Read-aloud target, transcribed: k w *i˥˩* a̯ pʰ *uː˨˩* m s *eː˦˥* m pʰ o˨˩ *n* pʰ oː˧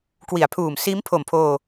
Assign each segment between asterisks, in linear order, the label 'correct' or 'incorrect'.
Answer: incorrect, correct, incorrect, incorrect

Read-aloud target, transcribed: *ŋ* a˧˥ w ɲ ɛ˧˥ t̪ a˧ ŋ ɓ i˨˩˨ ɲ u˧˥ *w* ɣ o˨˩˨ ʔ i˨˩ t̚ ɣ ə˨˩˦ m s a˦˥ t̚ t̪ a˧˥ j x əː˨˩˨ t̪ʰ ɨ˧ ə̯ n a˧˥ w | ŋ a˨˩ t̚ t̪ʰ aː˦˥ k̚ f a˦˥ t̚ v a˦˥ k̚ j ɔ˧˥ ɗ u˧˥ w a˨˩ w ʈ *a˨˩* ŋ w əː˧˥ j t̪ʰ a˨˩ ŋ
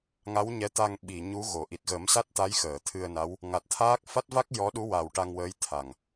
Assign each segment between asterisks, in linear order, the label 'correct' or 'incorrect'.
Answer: correct, incorrect, incorrect

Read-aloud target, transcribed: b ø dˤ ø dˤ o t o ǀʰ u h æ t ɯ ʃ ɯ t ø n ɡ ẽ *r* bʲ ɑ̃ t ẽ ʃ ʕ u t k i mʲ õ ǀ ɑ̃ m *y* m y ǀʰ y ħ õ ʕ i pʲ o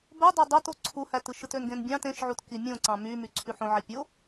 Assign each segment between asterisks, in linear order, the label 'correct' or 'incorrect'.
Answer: incorrect, correct

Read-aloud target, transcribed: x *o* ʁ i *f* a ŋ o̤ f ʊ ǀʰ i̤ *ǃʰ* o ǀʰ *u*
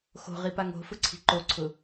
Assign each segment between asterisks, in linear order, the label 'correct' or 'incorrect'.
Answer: incorrect, incorrect, incorrect, incorrect

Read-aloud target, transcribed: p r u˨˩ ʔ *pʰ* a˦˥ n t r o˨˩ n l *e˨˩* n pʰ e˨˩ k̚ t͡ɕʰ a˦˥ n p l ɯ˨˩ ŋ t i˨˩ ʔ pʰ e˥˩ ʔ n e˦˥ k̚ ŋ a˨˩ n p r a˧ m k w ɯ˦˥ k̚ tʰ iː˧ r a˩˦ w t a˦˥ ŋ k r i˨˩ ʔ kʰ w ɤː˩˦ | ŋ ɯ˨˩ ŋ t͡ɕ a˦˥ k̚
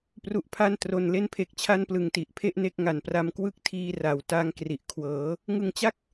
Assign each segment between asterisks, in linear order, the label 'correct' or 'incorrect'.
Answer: correct, incorrect

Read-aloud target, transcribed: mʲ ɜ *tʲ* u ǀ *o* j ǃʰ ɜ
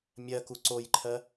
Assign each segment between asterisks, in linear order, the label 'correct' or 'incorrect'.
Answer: incorrect, correct

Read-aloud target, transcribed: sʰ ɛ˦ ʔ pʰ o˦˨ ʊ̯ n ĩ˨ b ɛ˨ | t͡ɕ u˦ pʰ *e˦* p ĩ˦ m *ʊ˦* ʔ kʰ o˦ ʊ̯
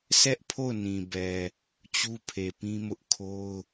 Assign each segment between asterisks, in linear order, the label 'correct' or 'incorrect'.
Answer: incorrect, correct

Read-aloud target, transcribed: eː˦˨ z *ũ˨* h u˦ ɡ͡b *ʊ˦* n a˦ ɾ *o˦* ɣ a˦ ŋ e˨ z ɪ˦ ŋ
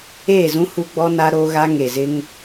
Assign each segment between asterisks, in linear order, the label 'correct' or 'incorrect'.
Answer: incorrect, incorrect, correct

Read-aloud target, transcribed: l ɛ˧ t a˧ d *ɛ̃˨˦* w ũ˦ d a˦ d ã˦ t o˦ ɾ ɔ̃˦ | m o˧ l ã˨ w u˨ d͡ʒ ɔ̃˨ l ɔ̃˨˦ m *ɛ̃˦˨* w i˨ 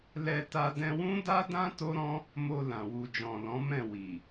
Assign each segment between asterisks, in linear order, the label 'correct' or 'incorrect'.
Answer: incorrect, correct

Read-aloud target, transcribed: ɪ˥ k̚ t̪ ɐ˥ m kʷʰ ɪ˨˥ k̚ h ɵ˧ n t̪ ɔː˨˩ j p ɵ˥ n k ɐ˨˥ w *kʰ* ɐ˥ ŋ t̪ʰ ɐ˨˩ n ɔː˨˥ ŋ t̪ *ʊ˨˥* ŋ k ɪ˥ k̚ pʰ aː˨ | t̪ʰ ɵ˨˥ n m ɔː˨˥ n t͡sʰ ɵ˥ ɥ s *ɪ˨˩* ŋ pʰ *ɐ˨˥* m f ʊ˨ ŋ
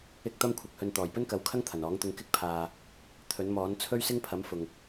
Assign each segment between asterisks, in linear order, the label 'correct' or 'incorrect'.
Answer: correct, incorrect, incorrect, correct

